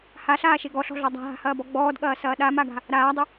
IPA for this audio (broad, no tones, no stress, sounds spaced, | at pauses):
h a ɬ aː ʃ e ɡ ɔ ɬ ɔ̤ ɮ ɔ dˤ a̤ ɦ a̤ h ɐː b ɔ ɡ͡b ɔː d ɠ ɐː s ɐː ɗ a m a ɡ a̤ | ɾ aː dˤ ʏ